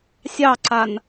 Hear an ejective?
no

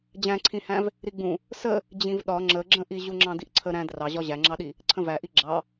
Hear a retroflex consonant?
no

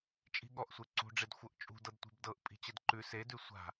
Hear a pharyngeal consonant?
no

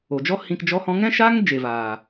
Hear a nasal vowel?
yes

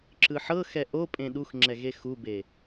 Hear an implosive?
yes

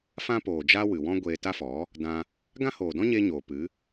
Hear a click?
no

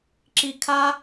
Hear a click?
yes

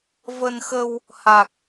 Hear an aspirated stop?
no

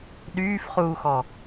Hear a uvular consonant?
yes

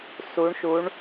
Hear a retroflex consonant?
yes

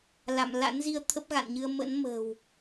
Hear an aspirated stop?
yes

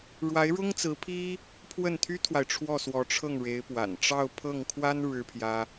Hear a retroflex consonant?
yes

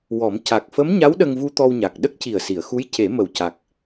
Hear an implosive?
yes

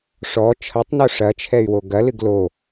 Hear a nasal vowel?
no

